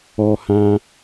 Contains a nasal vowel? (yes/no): yes